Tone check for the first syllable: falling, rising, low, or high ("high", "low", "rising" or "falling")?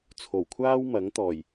low